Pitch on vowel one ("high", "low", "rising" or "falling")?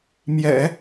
low